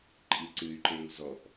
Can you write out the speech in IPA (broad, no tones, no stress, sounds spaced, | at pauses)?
ǃʼ i ǀ ɨ y̯ ǃ e ŋ z ɔ ʔ